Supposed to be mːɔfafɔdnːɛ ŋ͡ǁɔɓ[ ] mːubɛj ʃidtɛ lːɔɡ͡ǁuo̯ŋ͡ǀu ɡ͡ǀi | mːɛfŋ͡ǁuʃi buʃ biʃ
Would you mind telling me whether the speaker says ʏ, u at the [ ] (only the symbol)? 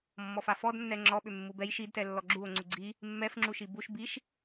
ʏ